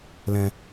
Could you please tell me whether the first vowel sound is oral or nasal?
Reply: nasal